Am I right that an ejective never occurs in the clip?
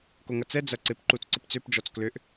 yes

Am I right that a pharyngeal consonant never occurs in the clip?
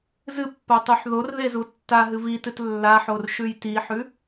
no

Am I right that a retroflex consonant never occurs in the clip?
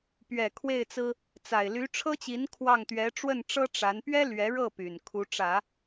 no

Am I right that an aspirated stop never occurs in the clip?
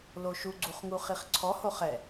no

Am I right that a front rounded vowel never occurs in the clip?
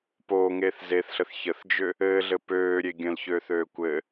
no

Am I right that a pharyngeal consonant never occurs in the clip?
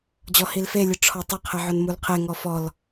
no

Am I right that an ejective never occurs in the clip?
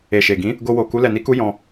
yes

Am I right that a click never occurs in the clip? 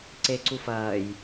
no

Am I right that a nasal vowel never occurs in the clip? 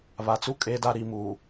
yes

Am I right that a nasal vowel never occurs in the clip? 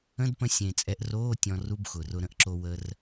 no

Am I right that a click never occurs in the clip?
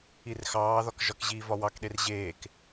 yes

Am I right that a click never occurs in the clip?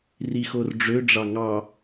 yes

